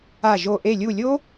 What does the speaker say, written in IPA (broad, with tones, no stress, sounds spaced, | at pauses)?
a˧˩ ʒ o˧˩ ʔ e˧˩ lʲ u˧˩ lʲ o˦˥